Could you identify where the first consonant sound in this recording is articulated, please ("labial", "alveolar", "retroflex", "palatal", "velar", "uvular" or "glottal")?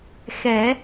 velar